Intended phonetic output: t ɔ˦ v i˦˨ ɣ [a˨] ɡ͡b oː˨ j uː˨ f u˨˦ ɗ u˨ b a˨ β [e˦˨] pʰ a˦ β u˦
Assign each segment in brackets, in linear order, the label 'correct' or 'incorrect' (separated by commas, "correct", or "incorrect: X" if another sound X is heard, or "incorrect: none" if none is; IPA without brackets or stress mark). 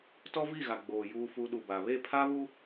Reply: correct, correct